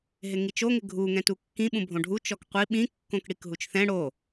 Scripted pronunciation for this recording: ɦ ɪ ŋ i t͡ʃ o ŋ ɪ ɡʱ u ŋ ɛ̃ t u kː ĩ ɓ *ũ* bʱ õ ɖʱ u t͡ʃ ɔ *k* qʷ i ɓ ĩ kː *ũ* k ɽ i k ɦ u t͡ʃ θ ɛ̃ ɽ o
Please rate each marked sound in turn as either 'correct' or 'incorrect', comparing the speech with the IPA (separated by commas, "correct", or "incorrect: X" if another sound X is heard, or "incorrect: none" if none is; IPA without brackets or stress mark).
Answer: correct, correct, incorrect: õ